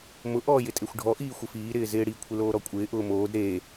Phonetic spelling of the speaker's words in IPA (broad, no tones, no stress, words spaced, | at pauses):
mʊ ʔɔːjɪtʼexʷɖʱɔ ʔiːxʷɪfiː ɾɪːzɪːɽi kʷʰɪloːɾɔkʷʼɪː ʔʊːmoːd ɾeː